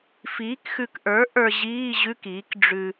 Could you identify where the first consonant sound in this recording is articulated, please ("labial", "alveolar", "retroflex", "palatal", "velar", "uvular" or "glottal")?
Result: labial